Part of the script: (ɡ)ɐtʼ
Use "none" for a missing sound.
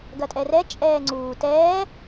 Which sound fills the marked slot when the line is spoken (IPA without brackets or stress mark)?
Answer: ɡ